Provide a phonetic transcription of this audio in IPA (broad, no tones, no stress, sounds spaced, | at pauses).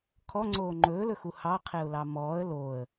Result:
kʰ ɔ ŋ͡ǀ oː ŋ͡ǃ ɵː l ɵ x u h ɑ qʰ e ʊ̯ l ɑ m ɔː ə̯ l oː ə̯